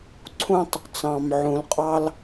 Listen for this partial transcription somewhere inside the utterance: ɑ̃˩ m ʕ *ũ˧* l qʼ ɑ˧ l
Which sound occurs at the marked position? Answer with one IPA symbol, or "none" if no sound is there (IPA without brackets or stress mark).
ũ˩